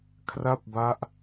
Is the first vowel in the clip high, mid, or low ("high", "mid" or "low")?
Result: low